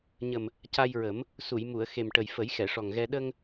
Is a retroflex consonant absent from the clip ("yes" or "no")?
no